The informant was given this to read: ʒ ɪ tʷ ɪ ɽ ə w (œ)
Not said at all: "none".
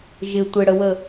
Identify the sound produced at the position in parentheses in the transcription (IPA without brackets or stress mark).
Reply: ə